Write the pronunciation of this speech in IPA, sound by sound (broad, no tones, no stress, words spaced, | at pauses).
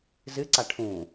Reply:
zɨǀa ʈʰũ